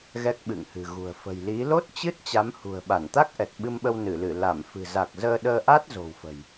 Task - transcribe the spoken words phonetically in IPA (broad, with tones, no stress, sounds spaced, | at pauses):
ɣ ɛ˦˥ k̚ ɓ ɨ̰˧˨ ŋ h ɨ̤˨˩ ɣ ṳ˨˩ ə̯ f ə̤˨˩ j l i˨˦ l o˦˥ t̚ t͡ɕ ɨ˦˥ t̚ t͡ɕ a˨˦ m h ṳ˨˩ ə̯ ɓ a˧˩ n t̪ a˦˥ k̚ ʔ ɛ˨˩ t̚ ɓ ɨ˧ m ɓ ə˧ w n ɨ˧˩ l ɨ˧˩ l a˧˩ m f ɨ̤˨˩ z a˨˩ k̚ z əː˧ ɗ əː˧ ʔ a˦˥ t̚ z o̤˨˩ w f ə̤˨˩ j